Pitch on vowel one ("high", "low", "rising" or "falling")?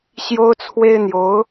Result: high